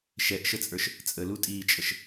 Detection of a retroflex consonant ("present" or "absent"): absent